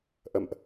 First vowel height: mid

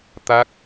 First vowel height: low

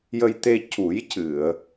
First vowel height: mid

